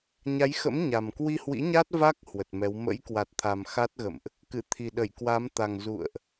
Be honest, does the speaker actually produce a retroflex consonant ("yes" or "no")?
no